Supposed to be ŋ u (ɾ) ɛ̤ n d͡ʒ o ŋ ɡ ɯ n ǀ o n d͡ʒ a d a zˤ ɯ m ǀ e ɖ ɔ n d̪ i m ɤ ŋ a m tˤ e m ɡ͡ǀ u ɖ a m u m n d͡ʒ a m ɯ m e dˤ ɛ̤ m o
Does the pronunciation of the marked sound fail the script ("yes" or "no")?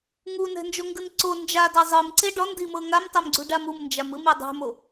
yes